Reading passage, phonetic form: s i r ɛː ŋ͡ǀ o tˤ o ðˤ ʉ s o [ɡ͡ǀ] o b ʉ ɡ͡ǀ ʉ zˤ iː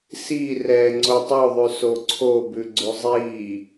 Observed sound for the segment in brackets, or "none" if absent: ǀʰ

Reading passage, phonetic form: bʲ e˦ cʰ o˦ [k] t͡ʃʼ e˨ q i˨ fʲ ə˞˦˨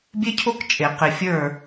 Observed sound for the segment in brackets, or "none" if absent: k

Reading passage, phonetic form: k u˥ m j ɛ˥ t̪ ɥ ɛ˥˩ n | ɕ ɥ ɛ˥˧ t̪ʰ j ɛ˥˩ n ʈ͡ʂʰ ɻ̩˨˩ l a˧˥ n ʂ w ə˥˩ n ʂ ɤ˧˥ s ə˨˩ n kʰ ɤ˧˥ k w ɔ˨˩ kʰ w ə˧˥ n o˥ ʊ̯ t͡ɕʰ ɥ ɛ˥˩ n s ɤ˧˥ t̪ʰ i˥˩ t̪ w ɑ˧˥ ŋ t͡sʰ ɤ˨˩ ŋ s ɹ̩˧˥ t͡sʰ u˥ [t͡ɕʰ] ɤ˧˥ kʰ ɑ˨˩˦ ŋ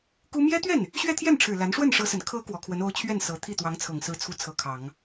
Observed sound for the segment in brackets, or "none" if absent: t͡sʰ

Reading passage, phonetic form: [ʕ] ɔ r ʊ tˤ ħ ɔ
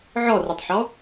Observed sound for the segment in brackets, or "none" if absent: ʕ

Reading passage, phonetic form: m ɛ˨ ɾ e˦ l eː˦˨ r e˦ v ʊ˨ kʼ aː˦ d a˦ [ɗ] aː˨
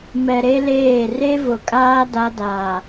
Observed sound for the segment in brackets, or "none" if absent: d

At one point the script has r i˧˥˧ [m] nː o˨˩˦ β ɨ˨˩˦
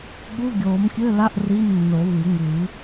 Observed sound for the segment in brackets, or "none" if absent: m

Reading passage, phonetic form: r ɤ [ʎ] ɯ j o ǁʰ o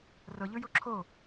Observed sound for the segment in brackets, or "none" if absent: ʎ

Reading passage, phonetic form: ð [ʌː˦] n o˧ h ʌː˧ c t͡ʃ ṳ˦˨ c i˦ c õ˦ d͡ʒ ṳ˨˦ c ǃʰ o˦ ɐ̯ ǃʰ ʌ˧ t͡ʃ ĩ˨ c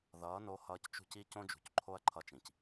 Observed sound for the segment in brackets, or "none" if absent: ʌː˨˦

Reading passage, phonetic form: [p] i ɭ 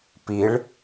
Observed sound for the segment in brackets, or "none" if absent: p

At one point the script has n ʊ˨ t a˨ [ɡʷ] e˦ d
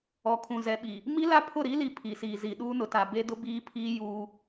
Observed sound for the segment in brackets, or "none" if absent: b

